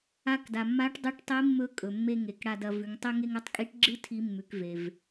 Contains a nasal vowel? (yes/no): no